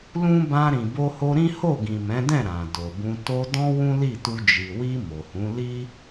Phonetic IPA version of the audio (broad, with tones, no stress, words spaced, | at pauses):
lũ˦ bã˧ ɾĩ˨bo˧ho˧ɾĩ˦ ho˦˨ɡĩ˨mɛ̃˨˦dɛ̃˦˨ ɾã˨do˨bũ˧ to˧dɔ̃˦ wũ˦li˦˨tu˧ d͡ʒi˨wi˧ mo˨hũ˨˦li˦